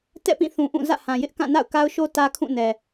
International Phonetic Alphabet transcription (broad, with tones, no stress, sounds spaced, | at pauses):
t ɛ̰˦˨ p ĩ˦˨ θ ũ˨ ʔ ũ˦˨ z ä̰˦˨ h ã˨ j ɪ˦ ʔ k ã˦˨ n a̰˦˨ ʊ̯ k a˦ ʊ̯ ʃ o˦ t ä˦ kʰ ũ˦˨ n ɛ˨